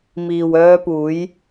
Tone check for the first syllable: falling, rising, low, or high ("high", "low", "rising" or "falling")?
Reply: low